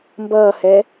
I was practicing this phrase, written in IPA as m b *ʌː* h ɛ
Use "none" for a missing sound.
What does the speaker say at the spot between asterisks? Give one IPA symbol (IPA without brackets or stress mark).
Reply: ʌː